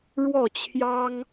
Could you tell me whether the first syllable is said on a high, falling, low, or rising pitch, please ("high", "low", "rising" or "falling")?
falling